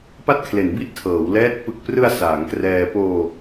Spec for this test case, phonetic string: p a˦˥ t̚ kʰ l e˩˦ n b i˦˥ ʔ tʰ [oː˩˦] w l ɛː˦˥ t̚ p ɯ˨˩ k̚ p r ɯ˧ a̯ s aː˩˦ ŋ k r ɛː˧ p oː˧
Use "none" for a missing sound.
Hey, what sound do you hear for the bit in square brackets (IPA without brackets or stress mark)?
ɤː˩˦